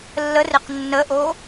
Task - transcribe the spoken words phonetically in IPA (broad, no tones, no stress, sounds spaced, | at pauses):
lː ə r ɪ q nː ə ʔ o